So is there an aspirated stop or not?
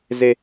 no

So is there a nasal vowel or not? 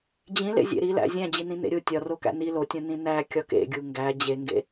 yes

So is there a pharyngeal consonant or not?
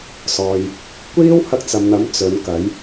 no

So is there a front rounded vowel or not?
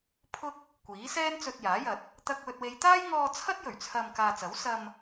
no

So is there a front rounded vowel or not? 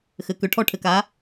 yes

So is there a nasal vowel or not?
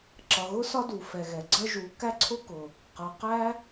no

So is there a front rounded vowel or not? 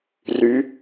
yes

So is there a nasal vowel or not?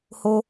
no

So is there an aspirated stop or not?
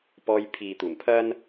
yes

